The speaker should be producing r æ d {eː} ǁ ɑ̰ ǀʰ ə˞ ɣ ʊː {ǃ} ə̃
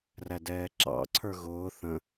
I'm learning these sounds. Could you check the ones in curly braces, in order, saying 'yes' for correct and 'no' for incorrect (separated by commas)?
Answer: no, no